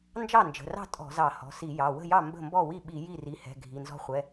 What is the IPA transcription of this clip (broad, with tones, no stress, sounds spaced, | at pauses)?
n d͡ʒ ɑ˥˩ n d͡ʒ ə̤˩˧˩ r ɑ̤˥˩ tʼ ɔ̤˧˩˧ z ɑ˧˩˧ h ɔ̤˩˧˩ s i˧˩˧ j ɑ˩˧˩ w ə̤˥˩ j ɑ˥˩ m b ə̤˥˩ m b ɔ˥˩ w i˥˩ ɓ i˧˩˧ j i˥˩ r i˩˧˩ h ɛ̤˩˧˩ ɡʱ i˩˧˩ n z ɔ̤˦ χʷ ɛ˩˧˩